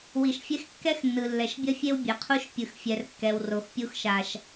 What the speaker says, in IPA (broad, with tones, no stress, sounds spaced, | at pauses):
w i˩ ʃ fʲ ɛ˦ x kː ɛ˥ x nː ɯ˩ lː ɛ˩ ʃ bʲ ʌ˥ fʲ e˥ w bʲ ɛ˩ qʰ u˦ ʃ pʲ ɯ˨ x fʲ ɛ˨ r kː ɛ˨ w r o˨ x pʲ u˦ x ʃ a˨ ʃ